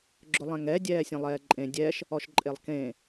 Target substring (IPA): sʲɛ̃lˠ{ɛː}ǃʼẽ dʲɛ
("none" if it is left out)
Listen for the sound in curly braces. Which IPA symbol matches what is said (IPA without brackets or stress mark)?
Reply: ɛː